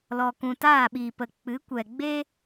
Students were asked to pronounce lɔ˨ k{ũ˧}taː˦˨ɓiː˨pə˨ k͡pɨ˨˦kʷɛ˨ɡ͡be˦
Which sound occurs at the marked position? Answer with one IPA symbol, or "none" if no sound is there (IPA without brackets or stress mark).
ũ˨